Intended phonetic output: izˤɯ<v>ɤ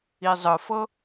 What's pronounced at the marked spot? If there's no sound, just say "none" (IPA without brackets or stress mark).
f